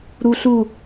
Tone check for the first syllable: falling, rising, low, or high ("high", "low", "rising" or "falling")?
low